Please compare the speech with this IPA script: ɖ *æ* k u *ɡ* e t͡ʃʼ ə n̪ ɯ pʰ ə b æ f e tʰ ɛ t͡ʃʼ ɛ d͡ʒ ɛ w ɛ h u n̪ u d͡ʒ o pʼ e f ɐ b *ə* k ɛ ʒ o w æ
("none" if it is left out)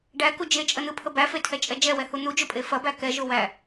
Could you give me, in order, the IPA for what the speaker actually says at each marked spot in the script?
æ, d͡ʒ, æ

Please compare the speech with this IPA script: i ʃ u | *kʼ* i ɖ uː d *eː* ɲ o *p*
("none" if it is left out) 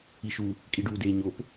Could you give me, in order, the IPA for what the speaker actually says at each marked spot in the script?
kʼ, eː, p

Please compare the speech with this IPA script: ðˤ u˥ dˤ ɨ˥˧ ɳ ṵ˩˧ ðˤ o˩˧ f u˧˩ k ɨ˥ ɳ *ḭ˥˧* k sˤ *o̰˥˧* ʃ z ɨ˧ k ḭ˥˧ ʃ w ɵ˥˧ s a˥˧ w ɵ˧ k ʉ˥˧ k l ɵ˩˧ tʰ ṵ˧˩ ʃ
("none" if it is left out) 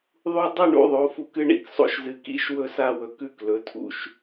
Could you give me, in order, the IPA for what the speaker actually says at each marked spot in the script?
ḭ˥˧, o̰˥˧

